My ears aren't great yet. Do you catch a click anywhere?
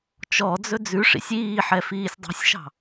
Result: no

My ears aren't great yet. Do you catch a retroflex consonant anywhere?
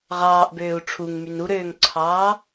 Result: yes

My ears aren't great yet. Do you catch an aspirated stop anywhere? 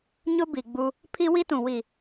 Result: yes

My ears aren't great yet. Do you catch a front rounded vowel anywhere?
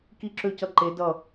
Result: yes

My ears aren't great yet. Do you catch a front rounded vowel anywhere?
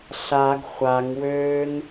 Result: yes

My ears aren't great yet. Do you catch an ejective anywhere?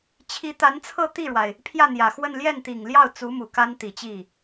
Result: no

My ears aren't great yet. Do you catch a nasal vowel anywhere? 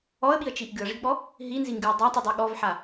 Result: no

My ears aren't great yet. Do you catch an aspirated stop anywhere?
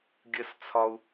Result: yes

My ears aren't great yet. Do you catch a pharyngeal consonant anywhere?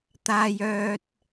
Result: no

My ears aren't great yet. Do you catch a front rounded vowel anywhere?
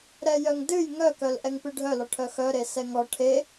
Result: yes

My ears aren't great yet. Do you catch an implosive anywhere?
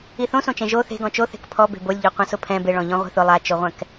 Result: no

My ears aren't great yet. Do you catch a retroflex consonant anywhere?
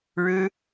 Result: yes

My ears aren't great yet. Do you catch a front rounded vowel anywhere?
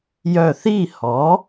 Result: yes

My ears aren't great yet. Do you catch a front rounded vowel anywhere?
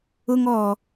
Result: no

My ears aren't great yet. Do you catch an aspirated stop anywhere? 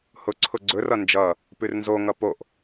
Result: yes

